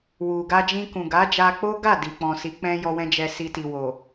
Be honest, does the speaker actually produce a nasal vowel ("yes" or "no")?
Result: yes